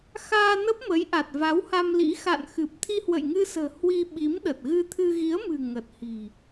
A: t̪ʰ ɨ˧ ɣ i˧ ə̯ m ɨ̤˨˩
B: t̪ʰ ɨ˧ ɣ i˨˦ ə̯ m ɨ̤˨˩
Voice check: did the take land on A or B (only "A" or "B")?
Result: B